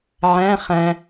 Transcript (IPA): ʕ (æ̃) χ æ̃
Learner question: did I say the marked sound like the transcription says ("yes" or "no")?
yes